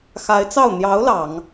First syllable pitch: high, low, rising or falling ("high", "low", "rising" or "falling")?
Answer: rising